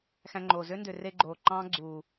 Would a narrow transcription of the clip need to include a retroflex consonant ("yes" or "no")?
no